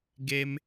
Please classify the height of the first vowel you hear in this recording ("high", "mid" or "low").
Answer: mid